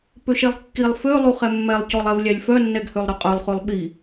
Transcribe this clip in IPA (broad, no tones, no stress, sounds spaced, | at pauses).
p ø ʃ e lˠ kː i lˠ f ø lˠ u χ ɛ mː ɛ lˠ c ɔ lˠ ɛ v lʲ æ lʲ f œ nː ɛ ɡ h ø lˠ ɾ œ qʼ œ lˠ χ ʉ lˠ ɓ i